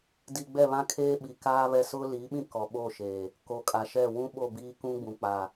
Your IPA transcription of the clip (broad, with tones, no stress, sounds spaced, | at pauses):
d i˨ ɡ͡b ɛ˦˨ β ã˦ kʰ eː˦ ɓ i˨ k aː˦ β ɛ˦ s ʊ˦ l i˨˦ ɓ ĩ˦ k ɔ˨ ɓ o˦˨ ʃ eː˨ | k o˨ kʼ a˨ ʃ ɛ˦˨ w ũ˦ ɓ o˦˨ b iː˦ k ũ˦ ɡ͡b ũ˨ k͡p a˨